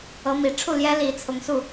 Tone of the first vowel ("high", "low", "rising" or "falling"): rising